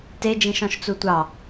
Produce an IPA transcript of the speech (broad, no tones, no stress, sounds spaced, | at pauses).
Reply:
t e d͡ʒ ĩ ʃ ɔ̃ ʃ t͡s u tʷ ɑ